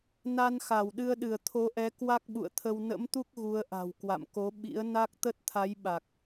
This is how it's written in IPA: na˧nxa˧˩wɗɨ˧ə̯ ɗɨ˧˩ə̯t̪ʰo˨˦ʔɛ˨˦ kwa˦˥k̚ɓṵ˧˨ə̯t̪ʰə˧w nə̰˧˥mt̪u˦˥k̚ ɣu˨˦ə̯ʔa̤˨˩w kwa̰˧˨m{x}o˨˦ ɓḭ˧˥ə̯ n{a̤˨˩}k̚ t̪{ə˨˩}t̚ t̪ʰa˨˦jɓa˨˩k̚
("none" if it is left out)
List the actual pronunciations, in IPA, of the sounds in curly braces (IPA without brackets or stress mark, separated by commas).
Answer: k, a˦˥, ə˦˥